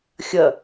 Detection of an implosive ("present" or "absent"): absent